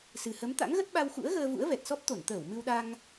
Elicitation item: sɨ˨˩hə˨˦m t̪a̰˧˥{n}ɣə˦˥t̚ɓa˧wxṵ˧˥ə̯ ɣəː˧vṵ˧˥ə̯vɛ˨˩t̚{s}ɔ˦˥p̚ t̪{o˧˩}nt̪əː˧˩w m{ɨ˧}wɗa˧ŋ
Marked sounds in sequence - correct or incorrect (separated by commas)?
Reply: incorrect, correct, correct, correct